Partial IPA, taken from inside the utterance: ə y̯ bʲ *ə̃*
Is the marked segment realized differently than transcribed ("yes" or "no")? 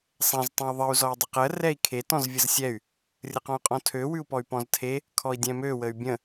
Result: no